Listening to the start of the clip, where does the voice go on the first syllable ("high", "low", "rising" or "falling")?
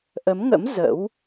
rising